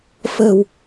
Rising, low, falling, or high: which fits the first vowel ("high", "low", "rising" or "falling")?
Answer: low